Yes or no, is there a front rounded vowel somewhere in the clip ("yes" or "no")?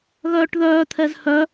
yes